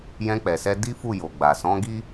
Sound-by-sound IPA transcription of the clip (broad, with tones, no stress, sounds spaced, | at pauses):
j ɛ̃˧ k͡p ɛ˨ s ɛ˧ d i˦ f u˦˨ j o˨ ɡ͡b a˨ s ɔ̃˨˦ ɡ i˦